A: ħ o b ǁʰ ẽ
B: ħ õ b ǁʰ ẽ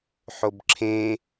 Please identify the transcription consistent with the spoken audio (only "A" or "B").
A